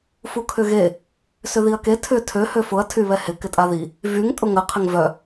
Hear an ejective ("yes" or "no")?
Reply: yes